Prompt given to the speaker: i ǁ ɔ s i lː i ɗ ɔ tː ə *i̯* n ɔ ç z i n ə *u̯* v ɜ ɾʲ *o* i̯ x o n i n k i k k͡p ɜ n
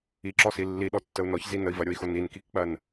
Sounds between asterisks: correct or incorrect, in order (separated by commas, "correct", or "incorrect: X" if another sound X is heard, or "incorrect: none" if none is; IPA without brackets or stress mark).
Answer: incorrect: u̯, incorrect: i̯, correct